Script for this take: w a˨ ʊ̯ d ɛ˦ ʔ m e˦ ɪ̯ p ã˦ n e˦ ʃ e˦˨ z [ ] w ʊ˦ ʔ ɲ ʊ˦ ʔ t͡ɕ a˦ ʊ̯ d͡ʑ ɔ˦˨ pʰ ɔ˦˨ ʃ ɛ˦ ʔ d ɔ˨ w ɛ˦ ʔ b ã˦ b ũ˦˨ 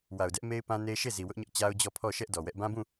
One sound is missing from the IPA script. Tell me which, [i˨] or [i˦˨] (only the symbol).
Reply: i˨